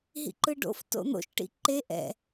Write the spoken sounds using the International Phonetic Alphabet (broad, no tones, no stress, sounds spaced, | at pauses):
ɦ ḭ ǃ ɯ ɖ o̰ f t o̰ n̪ o̰ ʃ ʈ ḭ ǃ e ʔ ɛ̰